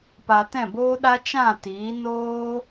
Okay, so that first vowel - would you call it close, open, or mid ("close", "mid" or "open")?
open